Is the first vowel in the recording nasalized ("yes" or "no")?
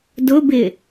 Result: no